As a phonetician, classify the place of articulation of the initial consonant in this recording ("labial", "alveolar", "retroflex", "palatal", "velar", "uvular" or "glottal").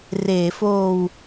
alveolar